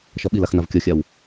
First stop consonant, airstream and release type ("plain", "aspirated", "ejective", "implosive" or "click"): implosive